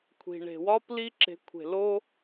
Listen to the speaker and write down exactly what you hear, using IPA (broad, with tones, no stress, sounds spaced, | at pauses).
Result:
kʷʰ i̤˨ ɳ e̤˨ w ɒ˦ p l i˦ ǁ e̤˨˦ kʷʰ e̤˨ l o˦